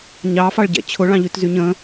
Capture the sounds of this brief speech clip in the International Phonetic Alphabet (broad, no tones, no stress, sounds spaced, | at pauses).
ɲ ɑ f ɑ ɭ ɟ ɛ̰ t͡ɕʰ ʊ ɭ ɑ̃ ʎ y t z y ɲ ə̃